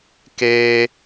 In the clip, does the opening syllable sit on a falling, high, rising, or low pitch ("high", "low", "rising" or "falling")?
high